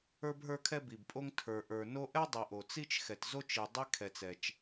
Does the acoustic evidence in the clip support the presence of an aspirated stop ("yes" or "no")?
yes